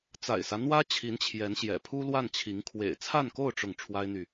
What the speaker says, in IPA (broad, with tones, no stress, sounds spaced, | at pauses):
t͡s a̰˨˩ ɪ̯ s ä˦ n̪ w ä˥ t͡ɕʰ i˧˥ n t͡ɕʰ j ɛ˧˥ n ɕ j ɛ̰˨˩ pʰ u˥ l w a˥˩ n t͡ɕʰ i˧˥ ŋ kʰ w ḛ˨˩ ɪ̯ t͡sʰ a˥˧ n k o˥˧ ʊ̯ ʈ͡ʂ ʊ˥˩ ŋ ʈ͡ʂʰ w a˥ ɪ̯ n̪ y˨